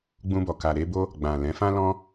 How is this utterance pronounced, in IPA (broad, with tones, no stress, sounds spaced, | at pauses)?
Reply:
ɡ͡b ũ˧ b ɔ˨ k a˨ ɾ e˧ b o˦ | ɡ͡b ã˨ l ɛ̃˨˦ f ã˦ l ɔ̃˦